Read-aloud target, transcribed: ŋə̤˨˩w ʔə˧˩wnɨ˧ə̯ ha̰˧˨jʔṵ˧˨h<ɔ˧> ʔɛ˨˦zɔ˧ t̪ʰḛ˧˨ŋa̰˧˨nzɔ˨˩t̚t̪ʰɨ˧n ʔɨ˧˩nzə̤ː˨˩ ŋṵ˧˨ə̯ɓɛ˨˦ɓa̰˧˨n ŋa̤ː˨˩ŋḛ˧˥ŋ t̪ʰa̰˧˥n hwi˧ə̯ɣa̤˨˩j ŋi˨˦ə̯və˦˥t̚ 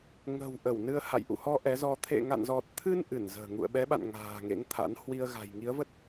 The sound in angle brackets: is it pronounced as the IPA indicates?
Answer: yes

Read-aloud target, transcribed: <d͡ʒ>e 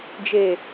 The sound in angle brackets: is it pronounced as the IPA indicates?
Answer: yes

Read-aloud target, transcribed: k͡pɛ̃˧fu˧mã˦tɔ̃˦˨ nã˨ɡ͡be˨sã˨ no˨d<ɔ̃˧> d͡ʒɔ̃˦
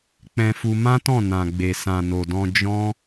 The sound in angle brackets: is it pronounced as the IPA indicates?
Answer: yes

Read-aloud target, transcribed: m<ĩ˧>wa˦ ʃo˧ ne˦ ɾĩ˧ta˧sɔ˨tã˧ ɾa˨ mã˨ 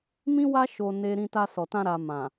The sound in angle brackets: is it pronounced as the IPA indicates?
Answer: no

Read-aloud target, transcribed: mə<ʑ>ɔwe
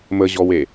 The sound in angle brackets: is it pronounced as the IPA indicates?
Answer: yes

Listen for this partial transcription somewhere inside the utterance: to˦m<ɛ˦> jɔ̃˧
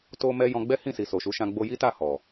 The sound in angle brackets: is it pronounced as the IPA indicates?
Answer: yes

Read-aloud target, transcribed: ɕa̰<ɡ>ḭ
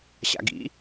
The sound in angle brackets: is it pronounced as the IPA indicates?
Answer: yes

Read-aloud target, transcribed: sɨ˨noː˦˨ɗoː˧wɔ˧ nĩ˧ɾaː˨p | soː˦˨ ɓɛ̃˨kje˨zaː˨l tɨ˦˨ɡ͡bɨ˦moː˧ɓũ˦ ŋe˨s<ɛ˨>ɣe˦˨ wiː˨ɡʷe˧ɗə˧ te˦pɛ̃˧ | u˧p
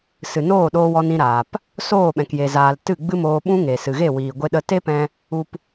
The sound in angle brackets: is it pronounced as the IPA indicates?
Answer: no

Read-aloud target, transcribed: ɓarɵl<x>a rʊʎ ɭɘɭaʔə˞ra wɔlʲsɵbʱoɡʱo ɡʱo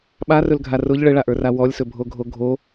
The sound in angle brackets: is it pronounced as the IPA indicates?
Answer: no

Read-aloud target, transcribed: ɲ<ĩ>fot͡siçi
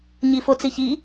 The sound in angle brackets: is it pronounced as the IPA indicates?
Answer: no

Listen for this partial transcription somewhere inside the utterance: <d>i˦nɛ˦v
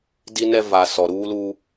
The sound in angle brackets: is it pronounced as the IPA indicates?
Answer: yes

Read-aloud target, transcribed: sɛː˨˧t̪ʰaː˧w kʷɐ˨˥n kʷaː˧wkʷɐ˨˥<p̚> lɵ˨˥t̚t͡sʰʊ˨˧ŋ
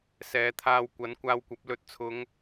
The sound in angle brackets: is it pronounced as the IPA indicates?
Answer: yes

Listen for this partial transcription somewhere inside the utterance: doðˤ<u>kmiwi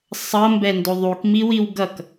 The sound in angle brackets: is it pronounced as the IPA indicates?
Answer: yes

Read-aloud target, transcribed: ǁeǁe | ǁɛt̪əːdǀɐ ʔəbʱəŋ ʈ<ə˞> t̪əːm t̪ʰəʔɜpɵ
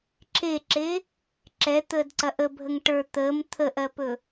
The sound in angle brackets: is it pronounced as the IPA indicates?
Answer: yes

